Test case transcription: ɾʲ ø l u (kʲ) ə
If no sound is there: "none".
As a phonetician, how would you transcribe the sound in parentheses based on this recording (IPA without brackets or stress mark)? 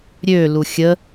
xʲ